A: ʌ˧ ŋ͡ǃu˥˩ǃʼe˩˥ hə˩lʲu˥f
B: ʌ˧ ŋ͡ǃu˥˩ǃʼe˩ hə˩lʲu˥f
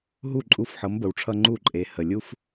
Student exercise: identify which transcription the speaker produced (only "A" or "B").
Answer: B